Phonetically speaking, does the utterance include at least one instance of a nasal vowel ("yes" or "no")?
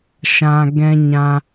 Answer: yes